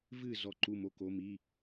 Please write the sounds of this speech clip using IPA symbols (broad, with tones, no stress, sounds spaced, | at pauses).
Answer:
v ɨ˥˩ z ɔ˥˩ ǃ u˥˩ m o˧˥˧ k o˧˥˧ m i˧˥˧